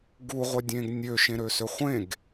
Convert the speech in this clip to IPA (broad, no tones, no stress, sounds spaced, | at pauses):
ɡ u ʁʷ ɛ dʲ ẽː ɡ nʲ ø ʃ ẽ ɾ ø s ø χʷ ẽ ɡ